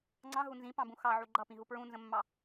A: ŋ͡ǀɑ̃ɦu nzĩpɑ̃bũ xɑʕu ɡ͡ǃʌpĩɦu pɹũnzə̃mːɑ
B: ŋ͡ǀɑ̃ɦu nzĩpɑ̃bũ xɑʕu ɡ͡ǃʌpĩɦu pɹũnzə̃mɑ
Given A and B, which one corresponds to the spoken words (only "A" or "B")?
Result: A